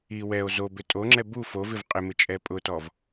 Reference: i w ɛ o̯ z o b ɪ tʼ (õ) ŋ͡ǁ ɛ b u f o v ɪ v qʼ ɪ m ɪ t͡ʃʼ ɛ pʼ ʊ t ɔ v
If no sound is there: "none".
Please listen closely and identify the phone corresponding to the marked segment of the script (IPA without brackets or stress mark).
o